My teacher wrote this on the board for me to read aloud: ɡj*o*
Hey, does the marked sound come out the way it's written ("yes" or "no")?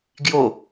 yes